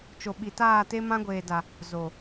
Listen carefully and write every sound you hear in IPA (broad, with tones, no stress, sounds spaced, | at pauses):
t͡ʃ o˨ ɓ i˨ t aː˦˨ t e˦ m ã˦ ɡʷ eː˨ d a˨ | z o˨